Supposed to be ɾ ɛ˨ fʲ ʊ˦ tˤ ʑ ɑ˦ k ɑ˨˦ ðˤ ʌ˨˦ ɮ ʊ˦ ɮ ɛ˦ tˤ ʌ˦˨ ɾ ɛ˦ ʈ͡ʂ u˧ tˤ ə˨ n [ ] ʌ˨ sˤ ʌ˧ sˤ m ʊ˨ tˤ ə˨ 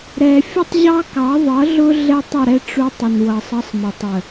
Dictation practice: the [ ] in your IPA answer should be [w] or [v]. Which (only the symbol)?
w